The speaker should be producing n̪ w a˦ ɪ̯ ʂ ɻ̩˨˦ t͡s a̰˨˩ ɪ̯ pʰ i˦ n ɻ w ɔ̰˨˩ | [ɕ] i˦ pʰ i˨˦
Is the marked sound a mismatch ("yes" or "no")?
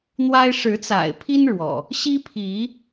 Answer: no